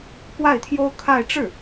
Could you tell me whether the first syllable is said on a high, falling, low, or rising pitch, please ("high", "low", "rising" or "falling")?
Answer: falling